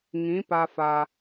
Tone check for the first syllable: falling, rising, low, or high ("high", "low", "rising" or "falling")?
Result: rising